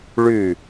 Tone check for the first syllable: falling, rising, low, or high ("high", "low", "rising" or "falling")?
falling